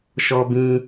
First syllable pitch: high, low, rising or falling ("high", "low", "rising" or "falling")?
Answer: low